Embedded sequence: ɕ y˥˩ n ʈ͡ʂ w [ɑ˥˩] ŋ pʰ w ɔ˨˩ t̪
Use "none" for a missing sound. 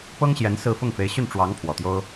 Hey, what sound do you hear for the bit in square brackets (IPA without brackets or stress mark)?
ɑ˧˥